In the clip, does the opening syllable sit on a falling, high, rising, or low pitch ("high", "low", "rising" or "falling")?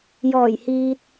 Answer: low